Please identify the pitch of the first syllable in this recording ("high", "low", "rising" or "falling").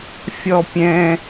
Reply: high